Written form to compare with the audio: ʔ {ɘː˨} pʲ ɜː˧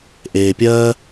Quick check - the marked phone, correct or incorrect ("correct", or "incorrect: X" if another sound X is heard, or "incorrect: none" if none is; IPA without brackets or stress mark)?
incorrect: eː˨